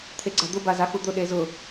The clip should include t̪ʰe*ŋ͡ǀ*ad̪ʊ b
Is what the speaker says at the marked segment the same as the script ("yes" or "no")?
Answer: no